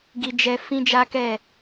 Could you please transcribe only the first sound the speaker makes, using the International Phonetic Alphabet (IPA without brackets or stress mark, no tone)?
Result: ɡ